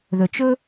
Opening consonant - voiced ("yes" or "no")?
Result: yes